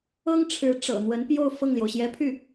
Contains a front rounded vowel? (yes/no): yes